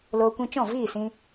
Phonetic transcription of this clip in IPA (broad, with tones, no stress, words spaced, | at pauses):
loː˧kʷĩ˧ t͡ʃɔ̃˦˨viː˦˨sĩ˧